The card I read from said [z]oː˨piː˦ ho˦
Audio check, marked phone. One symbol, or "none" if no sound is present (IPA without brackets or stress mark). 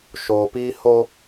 ʃ